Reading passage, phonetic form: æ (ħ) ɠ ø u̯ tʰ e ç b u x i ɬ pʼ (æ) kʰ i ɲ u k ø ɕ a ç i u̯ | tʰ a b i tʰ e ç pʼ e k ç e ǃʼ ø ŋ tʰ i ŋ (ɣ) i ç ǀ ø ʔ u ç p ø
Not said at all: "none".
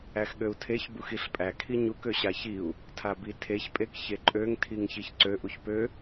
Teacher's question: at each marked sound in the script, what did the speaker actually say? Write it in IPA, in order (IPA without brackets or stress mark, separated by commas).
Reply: x, æ, ç